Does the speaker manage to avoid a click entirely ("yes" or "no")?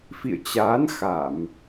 yes